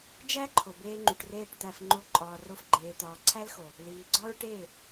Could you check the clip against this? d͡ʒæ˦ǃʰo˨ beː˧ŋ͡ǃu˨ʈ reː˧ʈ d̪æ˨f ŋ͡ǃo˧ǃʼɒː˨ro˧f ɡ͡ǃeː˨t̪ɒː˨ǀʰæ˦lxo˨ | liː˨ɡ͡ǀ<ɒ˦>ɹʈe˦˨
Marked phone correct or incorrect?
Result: correct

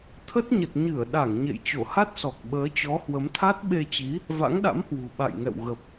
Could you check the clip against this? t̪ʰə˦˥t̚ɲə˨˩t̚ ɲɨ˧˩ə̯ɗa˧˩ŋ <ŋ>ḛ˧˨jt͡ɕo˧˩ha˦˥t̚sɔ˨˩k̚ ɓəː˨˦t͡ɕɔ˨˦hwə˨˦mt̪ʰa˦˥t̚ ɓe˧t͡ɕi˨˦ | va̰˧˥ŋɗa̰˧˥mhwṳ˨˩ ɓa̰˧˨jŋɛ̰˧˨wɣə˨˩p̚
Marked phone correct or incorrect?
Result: incorrect: ɲ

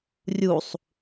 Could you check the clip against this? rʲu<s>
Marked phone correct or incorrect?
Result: incorrect: sˤ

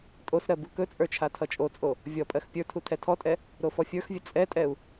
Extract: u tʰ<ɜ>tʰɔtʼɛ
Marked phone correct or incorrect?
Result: incorrect: ɛ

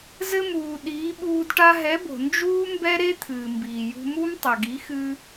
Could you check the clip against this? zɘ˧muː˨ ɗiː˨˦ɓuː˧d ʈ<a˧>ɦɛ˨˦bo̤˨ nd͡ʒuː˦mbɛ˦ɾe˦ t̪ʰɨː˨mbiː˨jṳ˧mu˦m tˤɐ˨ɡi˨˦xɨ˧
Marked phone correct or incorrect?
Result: correct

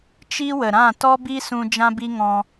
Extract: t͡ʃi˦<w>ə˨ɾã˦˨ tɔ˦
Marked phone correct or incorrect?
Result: correct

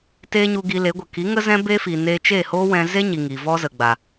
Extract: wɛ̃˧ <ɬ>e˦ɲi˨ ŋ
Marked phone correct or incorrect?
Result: incorrect: z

